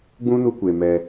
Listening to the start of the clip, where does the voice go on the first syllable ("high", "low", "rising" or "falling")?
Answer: high